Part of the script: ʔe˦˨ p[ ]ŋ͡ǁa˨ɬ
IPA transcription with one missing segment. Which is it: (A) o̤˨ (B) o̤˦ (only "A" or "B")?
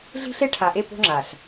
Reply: B